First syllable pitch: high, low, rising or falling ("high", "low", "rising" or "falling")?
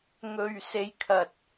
low